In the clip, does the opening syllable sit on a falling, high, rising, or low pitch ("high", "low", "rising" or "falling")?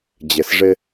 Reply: low